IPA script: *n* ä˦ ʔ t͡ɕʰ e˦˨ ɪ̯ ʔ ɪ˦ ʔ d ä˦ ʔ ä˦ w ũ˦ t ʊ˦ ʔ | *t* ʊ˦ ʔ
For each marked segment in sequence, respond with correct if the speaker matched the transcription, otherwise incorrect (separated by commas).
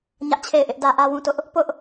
incorrect, incorrect